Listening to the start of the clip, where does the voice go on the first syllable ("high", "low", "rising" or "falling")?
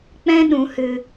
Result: high